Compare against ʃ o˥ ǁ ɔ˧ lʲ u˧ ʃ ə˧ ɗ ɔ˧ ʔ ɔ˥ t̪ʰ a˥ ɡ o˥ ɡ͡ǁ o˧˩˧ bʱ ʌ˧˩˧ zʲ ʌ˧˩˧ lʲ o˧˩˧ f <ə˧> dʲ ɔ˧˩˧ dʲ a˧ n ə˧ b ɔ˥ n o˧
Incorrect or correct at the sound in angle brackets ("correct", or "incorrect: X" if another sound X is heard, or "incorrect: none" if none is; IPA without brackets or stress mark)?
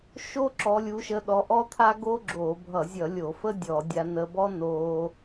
incorrect: ə˥